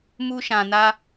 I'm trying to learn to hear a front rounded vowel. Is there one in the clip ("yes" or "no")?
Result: no